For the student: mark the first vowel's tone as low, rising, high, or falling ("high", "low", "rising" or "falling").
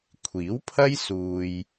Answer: rising